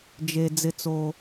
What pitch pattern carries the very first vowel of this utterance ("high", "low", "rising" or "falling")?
low